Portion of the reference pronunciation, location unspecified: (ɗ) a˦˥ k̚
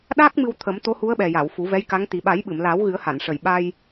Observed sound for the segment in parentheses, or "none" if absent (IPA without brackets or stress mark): ɗ